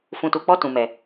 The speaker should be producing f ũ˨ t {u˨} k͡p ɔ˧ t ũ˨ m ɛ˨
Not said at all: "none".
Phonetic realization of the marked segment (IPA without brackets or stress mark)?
u˨